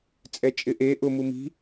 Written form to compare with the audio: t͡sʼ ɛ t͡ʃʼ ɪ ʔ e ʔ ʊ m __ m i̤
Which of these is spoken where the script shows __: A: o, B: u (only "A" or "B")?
B